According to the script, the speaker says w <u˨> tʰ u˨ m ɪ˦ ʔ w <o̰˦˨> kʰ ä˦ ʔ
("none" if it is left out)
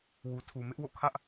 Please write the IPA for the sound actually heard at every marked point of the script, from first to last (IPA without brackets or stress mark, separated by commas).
u˨, o̰˦˨